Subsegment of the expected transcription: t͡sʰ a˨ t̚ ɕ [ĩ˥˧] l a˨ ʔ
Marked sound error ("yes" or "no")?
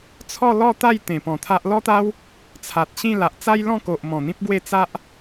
no